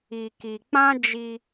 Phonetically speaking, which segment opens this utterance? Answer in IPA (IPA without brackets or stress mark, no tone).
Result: i